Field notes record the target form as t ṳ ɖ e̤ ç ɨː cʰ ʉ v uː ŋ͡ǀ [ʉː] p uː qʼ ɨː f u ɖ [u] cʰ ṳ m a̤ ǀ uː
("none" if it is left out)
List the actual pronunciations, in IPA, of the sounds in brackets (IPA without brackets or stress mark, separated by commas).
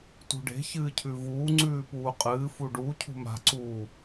ʉː, u